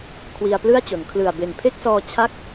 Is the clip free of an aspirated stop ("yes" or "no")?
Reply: no